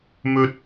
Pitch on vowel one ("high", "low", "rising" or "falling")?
high